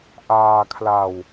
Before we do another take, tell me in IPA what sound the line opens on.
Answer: ʔ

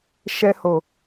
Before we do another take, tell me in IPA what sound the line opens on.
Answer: ʃ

